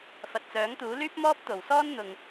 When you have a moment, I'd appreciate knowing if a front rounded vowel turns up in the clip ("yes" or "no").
yes